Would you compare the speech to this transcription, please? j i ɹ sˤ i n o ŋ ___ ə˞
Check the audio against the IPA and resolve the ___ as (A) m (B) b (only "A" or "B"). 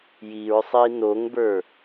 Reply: B